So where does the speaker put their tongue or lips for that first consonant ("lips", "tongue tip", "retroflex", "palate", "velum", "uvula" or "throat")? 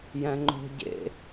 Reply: palate